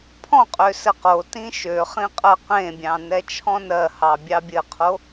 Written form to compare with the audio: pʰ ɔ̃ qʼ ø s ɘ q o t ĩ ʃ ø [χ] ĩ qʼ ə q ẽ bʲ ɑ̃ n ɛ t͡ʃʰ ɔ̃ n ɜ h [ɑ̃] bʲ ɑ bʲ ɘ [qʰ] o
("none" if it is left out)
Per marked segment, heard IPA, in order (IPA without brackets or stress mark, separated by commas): χ, ɑ, qʰ